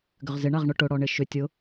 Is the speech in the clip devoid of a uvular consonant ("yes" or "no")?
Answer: no